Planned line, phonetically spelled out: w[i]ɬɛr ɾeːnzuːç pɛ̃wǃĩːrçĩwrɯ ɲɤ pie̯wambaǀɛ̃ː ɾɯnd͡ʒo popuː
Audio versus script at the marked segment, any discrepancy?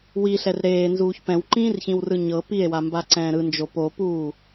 no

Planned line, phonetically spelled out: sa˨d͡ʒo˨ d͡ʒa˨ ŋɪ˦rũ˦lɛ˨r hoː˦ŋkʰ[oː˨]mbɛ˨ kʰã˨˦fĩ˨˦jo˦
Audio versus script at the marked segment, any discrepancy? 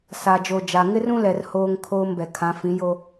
yes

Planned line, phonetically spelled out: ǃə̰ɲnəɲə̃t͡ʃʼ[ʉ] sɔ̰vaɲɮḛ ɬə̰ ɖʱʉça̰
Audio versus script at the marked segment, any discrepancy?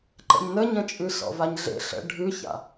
no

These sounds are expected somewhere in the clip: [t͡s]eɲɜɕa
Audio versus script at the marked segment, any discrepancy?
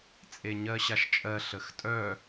yes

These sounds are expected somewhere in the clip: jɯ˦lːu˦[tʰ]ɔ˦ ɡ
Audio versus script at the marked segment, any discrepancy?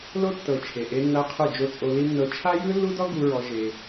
yes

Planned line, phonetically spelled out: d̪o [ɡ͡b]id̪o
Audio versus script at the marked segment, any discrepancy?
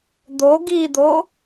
yes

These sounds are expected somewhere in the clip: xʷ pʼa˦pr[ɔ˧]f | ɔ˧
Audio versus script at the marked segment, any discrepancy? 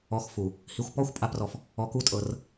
no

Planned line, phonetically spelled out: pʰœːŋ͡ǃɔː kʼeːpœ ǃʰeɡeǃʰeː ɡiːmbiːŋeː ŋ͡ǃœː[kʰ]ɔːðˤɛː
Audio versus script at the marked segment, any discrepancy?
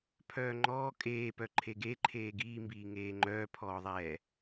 yes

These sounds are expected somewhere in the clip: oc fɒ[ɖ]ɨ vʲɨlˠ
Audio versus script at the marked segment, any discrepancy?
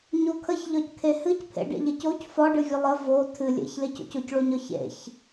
no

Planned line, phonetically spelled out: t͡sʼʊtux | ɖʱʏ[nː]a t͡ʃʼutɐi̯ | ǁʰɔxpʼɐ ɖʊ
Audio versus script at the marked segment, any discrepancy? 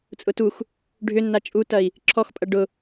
no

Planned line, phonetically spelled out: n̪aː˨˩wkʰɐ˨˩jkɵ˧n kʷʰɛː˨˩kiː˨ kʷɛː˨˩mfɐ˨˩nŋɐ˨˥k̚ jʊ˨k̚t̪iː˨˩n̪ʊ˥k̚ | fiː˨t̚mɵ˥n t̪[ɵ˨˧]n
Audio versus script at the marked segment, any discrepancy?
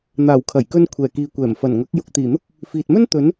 yes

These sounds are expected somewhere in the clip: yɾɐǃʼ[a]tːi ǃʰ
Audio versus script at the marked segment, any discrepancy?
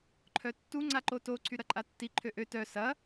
no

